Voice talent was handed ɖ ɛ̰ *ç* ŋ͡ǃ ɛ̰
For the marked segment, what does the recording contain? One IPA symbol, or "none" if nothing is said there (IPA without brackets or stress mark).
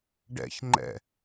ç